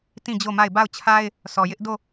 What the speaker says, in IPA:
t ĩ˦˨ d͡ʑ o˦˨ m a˦˨ ɪ̯ b a˦˨ ʊ̯ t͡ɕʰ a˦ ɪ̯ | s ɔ˨ j ɪ˦ ʔ d o˦˨

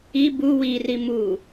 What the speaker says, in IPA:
i b u w i r i m u

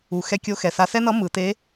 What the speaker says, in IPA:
u˩˧ x ɛ˧˥ kʲ o˧˥ x ɛ˩ s a˧ s ɛ˥ n ʌ˧˥ m ɯ˩˧ t e˧˥

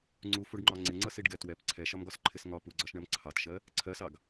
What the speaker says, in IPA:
ŋ͡ǀ u f u ɖ ŋ͡ǃ ɒ ŋ͡ǀ ɪ ŋ͡ǀ ʌ s i ɖ ɡ ɛ t w ɛ p ǀʰ ɛ ʃ ɒ m ɡ ɒ s ǃʰ ɪ s ŋ ɒ p u ɡ͡ǀ ɒ ʃ ɳ ɜ m ǀʰ ɑ t ʃ ɜ | ǀʰ ɜ s ɑ ɡ

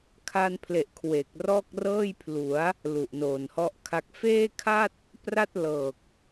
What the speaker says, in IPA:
kʰ a˧ n pʰ l e˨˩ ʔ kʰ w e˨˩ k̚ r ɔː˥˩ k̚ r ɤː˥˩ j pʰ l u˩˦ a̯ | l u˨˩ ʔ n oː˨˩ n h ɔ˦˥ ʔ kʰ a˦˥ k̚ f eː˥˩ kʰ a˥˩ t̚ | p r a˥˩ t̚ l ɤː˨˩ k̚

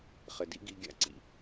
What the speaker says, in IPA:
χ ɘ˩ d ḭ˥ ɡ i˧ ɡʲ a̰˧ ǀ ḭ˩

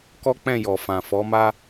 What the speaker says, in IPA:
k ɔ˦ k͡p ɛ̃˦˨ j ɔ˨ f ã˨ f ɔ˨˦ m a˦

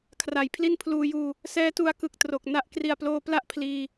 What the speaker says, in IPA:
kʰ r a˩˦ j pʰ l i˥˩ n pʰ l uː˧ j uː˧ | s ɛː˦˥ t u˧ a̯ k ɯ˨˩ k̚ t r o˨˩ k̚ n a˦˥ ʔ k r i˨˩ a̯ p l oː˧ p l a˥˩ ʔ pʰ l iː˧

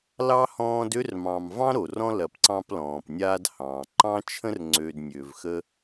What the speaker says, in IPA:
l ɑ˥ h ɔ̃ː˦ d ø˦ r m ɑ̃˨ m v ɑ̃˥ ɾ o˩ r ɔ̃˦ l ɐ˨ p ǀ ɑ̃˦ p l ɔ̃ː˩ p nʲ aː˦ d h ɑ̃ː˩ ǃ ɑ̃˥ t͡ʃʰ ə̃˥ r ŋ͡ǀ ø˨ d nʲ ø˩ v x ə˦

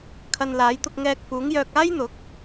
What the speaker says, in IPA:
kʰ ɐ˧ n l aː˨˥ j t̪ ʊ˧ k̚ ŋ ɛː˧ k̚ f uː˨˥ ŋ j œː˧ k̚ aː˥ j n̪ ʊ˨˥ k̚

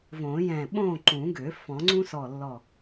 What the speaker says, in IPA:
v õː˨˩˦ j ɛ̃˧˩ ɓ õː˥˨ ǃ ũ˨˩˦ ɡ ø˨˩˦ f ɔ̃˨˩˦ ŋ͡ǀ ũ˥ s ɔ˧˩ lː ɔ˧˩

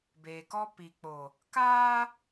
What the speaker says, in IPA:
b eː˨ k ɔ˦ p i˨ k͡p o˨ | k aː˦

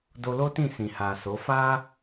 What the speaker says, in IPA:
d o˧ l o˦ t ĩ˦˨ s ĩ˨ h a˨ s o˨˦ f a˦

